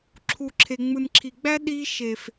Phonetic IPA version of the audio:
ǁʰ u˨ ǁʰ e˨ ŋ͡m ɯ˨ n ǁʰ i˨ ɡ͡b æ˦ ɗ i˧ ʃ e˨ f

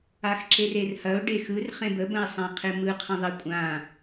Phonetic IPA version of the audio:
a x ǁ e r e r h ɐ ʊ̯ ɖ e x ɯ r χ ẽ b ə b ə̃ ɪ̯ sˤ ã qʰ e m ɯ qʰ ɐ̃ ðˤ ɐ kʷʼ ã

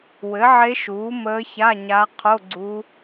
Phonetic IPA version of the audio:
w ɘ˩˥ ʕ e˧˥ ʃ uː˩˥ m əː˧˥ ç a˧˥˧ ɲ a˧˥ qʰ o˧˥˧ ɡ͡ǀ u˧˥

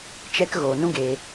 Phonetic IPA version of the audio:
t͡ʃ ɛ˧ k ɣ oː˨ n ũ˦ ɡ eː˧

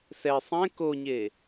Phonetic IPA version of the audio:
s ɛ sˤ ɛ̃ k o ɲ e

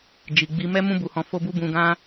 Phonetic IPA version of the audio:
d͡ʒ i˨ ɡ͡b i˨ m ɛ˧ m ũ˧ b u˨ h ɔ̃˨ f o˧ b u˧ b ũ˨ ɡ ã˧

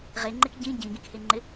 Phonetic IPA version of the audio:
ʁ e ŋ͡ǃ ɪ k ɟ ĩ ɟ ĩ ɡ ĩ k h e ŋ͡ǃ ɪ

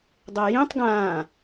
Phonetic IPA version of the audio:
dˤ e j ĩ tˤ ɡ ãː

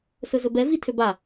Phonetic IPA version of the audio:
s ɵ z ɵ b ɛ v i tʰ ø b a

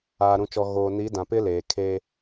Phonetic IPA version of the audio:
aː˨ ɾ ũ˨ t͡ʃ ɔ˨ ɣ oː˨ n i˨˦ d ã˨ p ɪ˦ l eː˨ kʰ eː˦

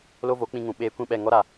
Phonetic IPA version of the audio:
l o˦ v o˨˦ k͡p ĩ˧ ŋ ũ˨ ɓ eː˧ kʷ ĩ˦˨ ɓ ɛ˦˨ ŋ ɔ˦ ɾ a˨

